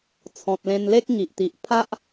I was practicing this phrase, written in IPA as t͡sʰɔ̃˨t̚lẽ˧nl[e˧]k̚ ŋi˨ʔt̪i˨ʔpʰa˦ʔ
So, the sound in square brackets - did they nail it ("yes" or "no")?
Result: no